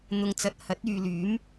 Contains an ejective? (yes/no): no